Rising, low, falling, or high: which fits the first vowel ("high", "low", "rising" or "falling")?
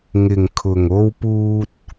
low